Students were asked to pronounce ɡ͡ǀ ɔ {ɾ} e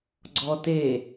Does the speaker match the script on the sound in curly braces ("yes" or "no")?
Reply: no